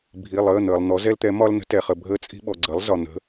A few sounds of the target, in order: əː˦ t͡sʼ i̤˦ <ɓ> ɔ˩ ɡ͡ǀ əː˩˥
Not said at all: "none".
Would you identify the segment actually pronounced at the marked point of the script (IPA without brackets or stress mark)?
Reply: ɓ